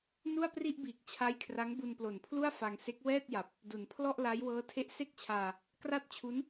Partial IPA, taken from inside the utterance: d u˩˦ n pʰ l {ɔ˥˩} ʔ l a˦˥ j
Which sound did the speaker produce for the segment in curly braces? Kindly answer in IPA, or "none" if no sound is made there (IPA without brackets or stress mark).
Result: ɔ˥˩